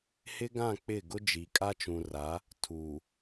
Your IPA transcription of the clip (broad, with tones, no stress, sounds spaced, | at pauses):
h ɪ˦ ɡ ã˦˨ k͡p ɪ˦˨ ɡ ʊ˦ d͡ʒ i˨ kʼ a˦ t͡ʃ ũ˨ r a˨˦ | tʰ uː˨